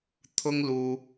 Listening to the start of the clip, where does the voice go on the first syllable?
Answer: high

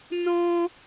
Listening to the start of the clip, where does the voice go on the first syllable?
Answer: high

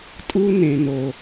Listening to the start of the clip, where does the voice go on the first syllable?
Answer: high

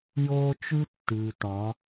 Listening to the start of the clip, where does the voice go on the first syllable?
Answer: high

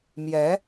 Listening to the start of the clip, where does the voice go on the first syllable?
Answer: rising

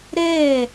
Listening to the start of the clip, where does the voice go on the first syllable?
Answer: falling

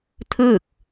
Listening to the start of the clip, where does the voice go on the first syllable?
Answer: falling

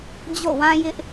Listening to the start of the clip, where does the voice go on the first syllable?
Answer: falling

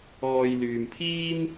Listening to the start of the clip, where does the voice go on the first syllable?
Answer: low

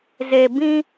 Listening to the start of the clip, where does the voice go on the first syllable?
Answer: low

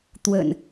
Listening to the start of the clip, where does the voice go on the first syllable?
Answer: low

